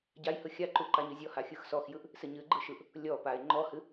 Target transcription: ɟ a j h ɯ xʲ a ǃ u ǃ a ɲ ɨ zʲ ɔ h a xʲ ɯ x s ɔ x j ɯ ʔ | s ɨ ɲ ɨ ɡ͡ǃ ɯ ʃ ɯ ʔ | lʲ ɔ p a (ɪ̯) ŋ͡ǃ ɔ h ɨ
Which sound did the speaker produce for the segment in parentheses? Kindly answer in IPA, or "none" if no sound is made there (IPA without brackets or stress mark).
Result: ɪ̯